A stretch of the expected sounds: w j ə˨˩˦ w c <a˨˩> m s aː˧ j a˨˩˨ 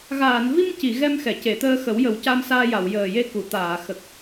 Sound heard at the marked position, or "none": a˧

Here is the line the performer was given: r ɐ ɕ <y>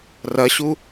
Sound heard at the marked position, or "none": u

